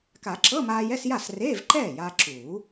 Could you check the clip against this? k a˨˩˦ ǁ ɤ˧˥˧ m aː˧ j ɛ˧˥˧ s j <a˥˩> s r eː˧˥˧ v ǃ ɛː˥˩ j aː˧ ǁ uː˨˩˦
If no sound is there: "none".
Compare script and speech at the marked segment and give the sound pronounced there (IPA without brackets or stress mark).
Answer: a˥˩